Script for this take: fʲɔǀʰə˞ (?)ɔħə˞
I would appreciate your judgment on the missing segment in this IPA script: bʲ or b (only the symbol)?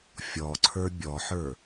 bʲ